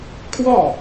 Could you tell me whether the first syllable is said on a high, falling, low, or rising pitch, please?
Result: falling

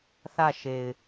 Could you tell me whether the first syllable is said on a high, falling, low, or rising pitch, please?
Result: falling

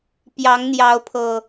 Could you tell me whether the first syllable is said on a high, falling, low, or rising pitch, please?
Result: rising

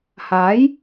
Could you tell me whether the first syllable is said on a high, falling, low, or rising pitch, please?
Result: rising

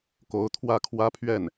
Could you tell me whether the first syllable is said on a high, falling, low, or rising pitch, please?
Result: rising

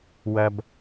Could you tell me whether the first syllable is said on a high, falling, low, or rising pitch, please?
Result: low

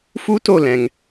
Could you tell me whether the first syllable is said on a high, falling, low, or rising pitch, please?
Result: high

